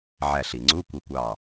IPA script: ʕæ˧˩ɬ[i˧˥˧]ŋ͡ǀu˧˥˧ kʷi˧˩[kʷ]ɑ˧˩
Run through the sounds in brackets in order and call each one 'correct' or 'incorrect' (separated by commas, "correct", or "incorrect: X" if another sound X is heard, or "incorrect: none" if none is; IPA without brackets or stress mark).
incorrect: i˩, correct